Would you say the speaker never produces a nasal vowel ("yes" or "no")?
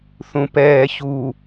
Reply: no